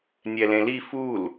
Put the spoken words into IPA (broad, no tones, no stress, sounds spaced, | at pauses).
nʲ ɛ l ẽ l i f u l